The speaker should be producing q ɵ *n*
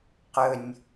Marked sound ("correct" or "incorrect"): incorrect